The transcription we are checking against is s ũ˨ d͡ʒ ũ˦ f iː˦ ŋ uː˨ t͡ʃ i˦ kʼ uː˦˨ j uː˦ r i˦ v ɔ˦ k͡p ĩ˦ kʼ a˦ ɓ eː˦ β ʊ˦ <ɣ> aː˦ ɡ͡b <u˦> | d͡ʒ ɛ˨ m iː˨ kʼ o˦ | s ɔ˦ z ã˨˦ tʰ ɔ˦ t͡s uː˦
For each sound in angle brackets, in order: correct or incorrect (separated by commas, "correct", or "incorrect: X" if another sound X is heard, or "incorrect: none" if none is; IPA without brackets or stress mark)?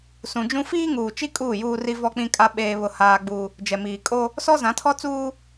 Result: incorrect: h, correct